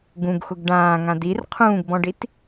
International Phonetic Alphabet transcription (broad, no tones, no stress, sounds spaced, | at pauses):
ɡ ũ ɡ x ʊ ɡ ɖ ãː ŋ ã d i r qʰ ũː ɡ b ɔ̃ ɖ i t